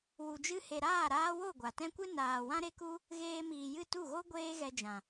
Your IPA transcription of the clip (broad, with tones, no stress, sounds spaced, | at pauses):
w u˨ d͡ʒ ɨ˧ h e˨ ɾ aː˦˨ ɾ aː˧ w o˦˨ ɡʷ a˨ t ɛ̃˦ kʷ ɨ˦ n aː˨ w ã˦ ɾ e˦ k u˦ | ɣ eː˧ m iː˨ j ɨ˦˨ t u˦˨ ɣ o˦ ɡʷ eː˦ ɣ ɛ˧ d͡ʒ ã˨